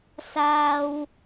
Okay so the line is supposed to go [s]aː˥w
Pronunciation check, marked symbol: correct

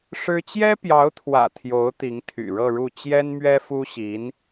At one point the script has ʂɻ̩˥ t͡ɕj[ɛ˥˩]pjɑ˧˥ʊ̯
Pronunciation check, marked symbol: incorrect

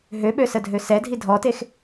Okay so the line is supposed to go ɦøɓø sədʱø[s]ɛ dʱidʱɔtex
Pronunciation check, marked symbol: correct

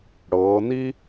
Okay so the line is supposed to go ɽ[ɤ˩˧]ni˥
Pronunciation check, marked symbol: correct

